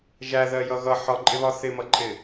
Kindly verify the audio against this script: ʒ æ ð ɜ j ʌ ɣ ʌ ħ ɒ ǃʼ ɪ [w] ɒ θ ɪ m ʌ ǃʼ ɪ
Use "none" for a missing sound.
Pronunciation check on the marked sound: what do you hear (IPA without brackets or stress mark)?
β